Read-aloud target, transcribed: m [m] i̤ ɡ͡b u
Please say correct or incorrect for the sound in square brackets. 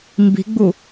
incorrect: b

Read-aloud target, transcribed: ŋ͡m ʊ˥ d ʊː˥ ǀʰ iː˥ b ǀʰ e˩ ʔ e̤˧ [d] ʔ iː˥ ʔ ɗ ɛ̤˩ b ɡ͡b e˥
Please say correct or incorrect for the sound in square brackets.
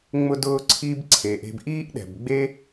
incorrect: b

